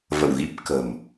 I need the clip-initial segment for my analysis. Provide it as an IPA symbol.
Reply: v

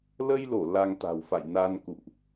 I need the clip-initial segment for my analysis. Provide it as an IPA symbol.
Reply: l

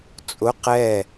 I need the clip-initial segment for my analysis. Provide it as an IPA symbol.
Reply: t͡sʼ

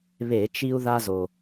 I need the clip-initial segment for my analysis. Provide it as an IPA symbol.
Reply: β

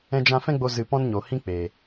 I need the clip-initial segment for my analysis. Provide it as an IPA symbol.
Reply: ɛ̃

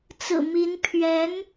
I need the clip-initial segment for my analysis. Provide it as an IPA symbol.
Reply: t͡s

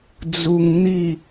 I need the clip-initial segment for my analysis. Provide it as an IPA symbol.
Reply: d͡z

